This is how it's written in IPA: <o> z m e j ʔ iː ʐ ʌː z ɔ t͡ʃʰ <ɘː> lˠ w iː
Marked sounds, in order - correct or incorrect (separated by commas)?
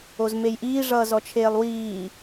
correct, incorrect